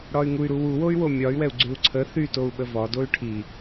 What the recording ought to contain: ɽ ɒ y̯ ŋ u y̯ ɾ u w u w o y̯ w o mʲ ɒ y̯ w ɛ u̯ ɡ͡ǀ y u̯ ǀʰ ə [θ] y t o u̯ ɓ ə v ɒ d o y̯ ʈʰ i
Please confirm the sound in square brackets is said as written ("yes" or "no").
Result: yes